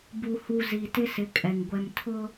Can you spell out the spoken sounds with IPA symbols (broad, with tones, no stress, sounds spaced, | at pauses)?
b u˨ h u˨ z i˨ t ɪ˦ s ɪ˨˦ kʼ ɛ˨ ŋ ɡʷ ɛ˨ m tʰ ʊ˦